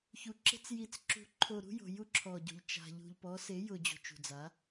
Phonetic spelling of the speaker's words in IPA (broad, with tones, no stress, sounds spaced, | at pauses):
ç u˨ ǁ e̤˦ t͡s j i˨ t͡s ǁ ṳ˨ ǃʰ o˨ ɾ ṳ˦ j o̤˨ j u˦ ǁʰ ɔ˨ ɟ o̤˨ ʎ t͡ʃ a̤˨ ʎ ṳ˨ ʎ p ɔ˨˦ s e˨˦ j ʊ˨ d͡ʑ o̤˨ t͡ʃ ṳ˨ d͡z a˨˦